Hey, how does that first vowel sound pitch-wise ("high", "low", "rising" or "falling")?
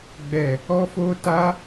low